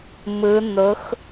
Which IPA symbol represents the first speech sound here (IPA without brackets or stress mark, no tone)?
m